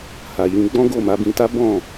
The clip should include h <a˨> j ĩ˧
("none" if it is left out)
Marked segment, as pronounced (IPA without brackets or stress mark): a˨